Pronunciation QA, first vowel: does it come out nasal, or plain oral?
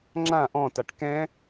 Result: nasal